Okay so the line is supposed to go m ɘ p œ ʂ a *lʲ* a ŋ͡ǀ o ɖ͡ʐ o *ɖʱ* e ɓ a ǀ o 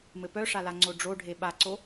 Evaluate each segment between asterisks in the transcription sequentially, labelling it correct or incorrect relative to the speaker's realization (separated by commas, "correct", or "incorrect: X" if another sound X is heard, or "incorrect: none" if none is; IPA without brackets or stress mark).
incorrect: l, correct